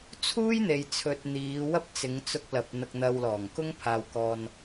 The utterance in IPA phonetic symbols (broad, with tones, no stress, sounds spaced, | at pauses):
t͡sʰ uː˥ j n̪ e˨ j t͡sʰ ɵ˨ t̚ n̪ iː˨˧ w ɐ˥ p̚ t͡s ɪ˨˧ ŋ t͡s ʊ˧ k̚ l ɐ˨ p̚ n̪ ɐ˧ k̚ n̪ ɐ˧ w l ɔː˨˩ ŋ k ʊ˥ ŋ pʰ aː˨ w k ɔː˨ n